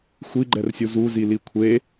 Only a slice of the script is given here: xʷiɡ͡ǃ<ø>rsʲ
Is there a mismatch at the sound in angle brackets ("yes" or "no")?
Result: yes